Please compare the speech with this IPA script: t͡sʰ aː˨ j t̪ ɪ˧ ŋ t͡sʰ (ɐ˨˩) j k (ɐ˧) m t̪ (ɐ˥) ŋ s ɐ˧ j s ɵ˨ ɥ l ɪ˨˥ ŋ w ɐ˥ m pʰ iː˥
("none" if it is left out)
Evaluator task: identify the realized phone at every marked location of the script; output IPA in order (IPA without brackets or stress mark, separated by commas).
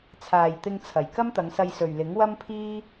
ɐ˨˩, ɐ˥, ɐ˨˧